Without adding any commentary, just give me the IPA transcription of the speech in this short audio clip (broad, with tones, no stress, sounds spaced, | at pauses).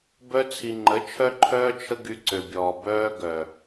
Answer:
b œ˧ t͡sʰ i˨ ŋ͡ǃ ə˨˦ t͡ʃʰ œ˦ ǃʰ œː˦ t͡ʃʰ ə˦ ɡ y˧ ǀ ø˨ bʲ ɔː˨ b œː˧ ɡ œ˨